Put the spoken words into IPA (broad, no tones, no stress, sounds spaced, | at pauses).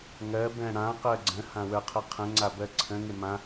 ŋ ɜ b ɛ̃ ɽ ã q ɜ ɡ͡ǀ ə̃ h ã w ə˞ qʰ ə qʰ ə̃ ŋ͡ǀ a b ɜ ǀʰ ə̃ ŋ ɪ m ã